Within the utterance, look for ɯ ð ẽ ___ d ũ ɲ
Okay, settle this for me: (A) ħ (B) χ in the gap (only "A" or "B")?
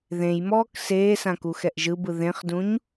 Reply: B